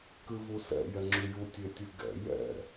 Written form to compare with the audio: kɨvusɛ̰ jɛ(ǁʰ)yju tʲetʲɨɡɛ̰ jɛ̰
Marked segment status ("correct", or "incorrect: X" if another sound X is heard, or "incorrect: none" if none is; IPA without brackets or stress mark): incorrect: ŋ͡ǁ